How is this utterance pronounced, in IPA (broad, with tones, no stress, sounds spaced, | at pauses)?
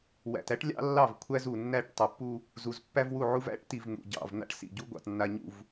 w æ̰˨ t æ˦ ʈ lʲ ɑ̰˦ lː ɑ˦˨ v kʷʰ æ˦ z u˨ nː æ˦˨ ʈ tˤ u˨ pː u˦ | z u˨ z pː æ˦ v w u˦˨ ʕ u˦ v æ̰˦ ʈ t i˨ v n̪ ṵ˨ ɟ ɑ̰˨ v n̪ a̰˦ ʈ s ḭ˨ ɟ u˦ ɡʷ ɑ̰˨ t nː a˨ ɲ ṵ˨ v